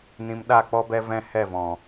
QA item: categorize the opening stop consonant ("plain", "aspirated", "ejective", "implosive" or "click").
implosive